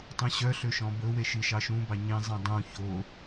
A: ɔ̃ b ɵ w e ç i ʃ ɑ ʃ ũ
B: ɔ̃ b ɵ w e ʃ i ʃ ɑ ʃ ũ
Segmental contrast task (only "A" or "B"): B